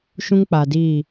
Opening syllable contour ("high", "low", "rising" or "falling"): high